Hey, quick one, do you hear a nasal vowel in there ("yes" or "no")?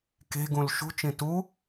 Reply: yes